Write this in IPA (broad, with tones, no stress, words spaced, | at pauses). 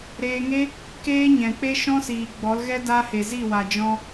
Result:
ɾeː˧ŋe˦ | keː˦ ɲɛ̃˨k͡pe˦ʃɔ̃˦siː˨ ɡ͡bɔ˨˦lɣɛ˦ da˧ he˨zi˦˨wa˨ d͡ʒɔ̃˧